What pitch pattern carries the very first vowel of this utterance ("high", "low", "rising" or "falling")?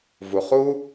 low